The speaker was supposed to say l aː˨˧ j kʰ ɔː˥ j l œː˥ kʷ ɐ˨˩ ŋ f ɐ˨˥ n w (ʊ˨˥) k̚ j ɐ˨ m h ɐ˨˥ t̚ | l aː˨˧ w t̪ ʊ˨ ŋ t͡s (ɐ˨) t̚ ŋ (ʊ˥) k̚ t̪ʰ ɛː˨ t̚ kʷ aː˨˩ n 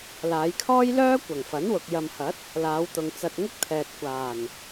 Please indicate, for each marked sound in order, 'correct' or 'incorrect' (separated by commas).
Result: incorrect, incorrect, correct